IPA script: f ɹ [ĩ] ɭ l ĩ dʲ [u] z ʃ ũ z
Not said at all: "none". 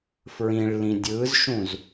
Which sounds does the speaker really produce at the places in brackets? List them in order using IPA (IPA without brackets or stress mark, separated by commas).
ĩ, ɯ